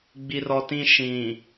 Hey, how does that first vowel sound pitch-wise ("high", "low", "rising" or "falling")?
high